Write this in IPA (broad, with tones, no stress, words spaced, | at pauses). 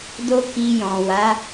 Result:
do˦ ki˧jɔ̃˨ wa˨˦